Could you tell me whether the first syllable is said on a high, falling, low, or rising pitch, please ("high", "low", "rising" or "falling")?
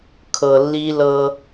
low